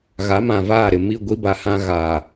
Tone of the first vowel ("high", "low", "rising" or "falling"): rising